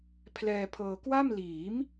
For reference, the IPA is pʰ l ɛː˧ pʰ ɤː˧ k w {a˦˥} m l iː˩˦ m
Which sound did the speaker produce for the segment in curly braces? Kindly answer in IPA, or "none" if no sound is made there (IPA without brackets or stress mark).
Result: a˥˩